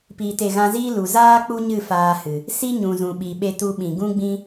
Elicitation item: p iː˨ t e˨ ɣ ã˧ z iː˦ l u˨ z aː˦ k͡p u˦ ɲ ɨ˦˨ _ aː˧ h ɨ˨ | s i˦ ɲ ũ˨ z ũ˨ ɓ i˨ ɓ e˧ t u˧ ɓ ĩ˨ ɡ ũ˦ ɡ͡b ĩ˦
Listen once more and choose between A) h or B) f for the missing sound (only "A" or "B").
B